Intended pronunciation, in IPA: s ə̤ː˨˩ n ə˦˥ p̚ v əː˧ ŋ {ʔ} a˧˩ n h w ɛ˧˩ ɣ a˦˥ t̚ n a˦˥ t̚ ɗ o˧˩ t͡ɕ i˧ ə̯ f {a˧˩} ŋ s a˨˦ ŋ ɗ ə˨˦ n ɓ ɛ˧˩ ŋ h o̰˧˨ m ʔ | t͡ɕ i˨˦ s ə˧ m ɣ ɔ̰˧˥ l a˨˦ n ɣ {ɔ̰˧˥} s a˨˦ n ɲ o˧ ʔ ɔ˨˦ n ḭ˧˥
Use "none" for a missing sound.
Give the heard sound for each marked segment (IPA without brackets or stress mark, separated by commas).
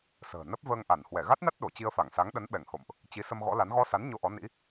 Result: ʔ, a˧˩, ɔ˧